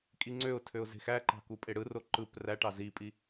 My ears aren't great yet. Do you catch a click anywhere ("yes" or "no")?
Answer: yes